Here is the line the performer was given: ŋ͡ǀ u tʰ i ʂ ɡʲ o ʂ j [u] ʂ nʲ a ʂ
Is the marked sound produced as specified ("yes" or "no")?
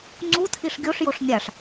no